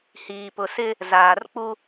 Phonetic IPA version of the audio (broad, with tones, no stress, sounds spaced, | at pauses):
h iː˨ p ʊ˨ s ɪ˦ | z aː˨ r k͡p u˦